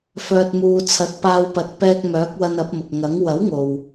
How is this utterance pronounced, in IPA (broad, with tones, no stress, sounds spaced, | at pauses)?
f œː˨ t̚ m uː˨ t͡sʰ ɐ˨ t̚ p aː˧ w p ɐ˨˥ t̚ p ɛː˧ k̚ m œː˨˥ k̚ w ɐ˧ n ɐ˨˥ p̚ m ʊ˨ k̚ ŋ ɐ˨˥ ŋ w ɐ˨˥ w ŋ o˨ w